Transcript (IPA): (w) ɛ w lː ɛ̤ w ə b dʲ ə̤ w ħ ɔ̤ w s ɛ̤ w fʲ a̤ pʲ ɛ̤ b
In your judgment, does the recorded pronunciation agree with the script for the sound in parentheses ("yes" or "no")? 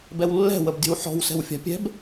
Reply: no